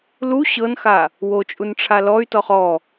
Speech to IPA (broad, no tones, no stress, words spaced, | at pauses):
lu ɕɤnxa | wot͡ʃʼunʈ͡ʂʰa lɔy̯tɔχ ɔ